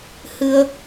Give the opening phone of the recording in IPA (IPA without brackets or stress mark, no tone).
h